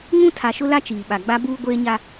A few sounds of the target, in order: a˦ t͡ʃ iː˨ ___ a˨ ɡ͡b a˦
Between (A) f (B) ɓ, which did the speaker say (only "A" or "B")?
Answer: B